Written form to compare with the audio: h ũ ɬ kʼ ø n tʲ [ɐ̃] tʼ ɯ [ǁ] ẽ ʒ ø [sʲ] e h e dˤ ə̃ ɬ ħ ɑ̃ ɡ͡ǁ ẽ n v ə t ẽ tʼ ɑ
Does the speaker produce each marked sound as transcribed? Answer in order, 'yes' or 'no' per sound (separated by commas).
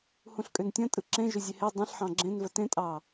yes, yes, no